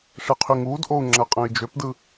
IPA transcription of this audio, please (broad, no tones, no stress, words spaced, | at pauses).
ʂeqʰyŋuːdʔou̯ ŋ͡ǁæqʼæ̃i̯d͡ʒøpdɯ